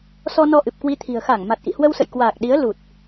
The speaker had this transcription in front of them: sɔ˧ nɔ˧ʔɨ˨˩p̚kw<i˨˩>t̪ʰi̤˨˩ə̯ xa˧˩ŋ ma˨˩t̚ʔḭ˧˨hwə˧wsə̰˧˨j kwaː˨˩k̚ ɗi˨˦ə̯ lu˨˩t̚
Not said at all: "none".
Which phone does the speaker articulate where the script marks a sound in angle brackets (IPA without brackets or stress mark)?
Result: i˧